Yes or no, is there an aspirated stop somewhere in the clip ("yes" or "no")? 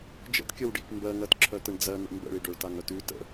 yes